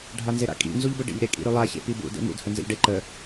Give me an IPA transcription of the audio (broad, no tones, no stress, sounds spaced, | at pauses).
ɖʱ a n z e ɾ a̰ kʼ ḭ n z u ʎ b ə ɖ ḭ ʎ ɾ e kʼ ḭ ɾ ʉ lˠ a ç ḛ p i b ṵ d ḛ m ṵ d h ə n z ə̰ ʎ ɖ e ǃ ə